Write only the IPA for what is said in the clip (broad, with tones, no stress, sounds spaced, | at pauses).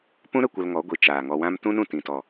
p ũ˦ ɾ ə˦˨ kʷ ə˧ l ŋ ɔ˨˦ ɡʷ i˨ t͡ʃ aː˨ ŋ ɔ˧ w ã˦ m t ũ˦ n ũ˨ t ĩ˨ t ɔ˨